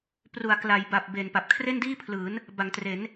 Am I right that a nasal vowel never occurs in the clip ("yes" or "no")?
yes